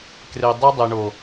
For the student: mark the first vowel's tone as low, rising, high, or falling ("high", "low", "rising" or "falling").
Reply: low